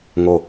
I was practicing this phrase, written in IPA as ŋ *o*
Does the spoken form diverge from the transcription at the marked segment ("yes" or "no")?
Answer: no